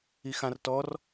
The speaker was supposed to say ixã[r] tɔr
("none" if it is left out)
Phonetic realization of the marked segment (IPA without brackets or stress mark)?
r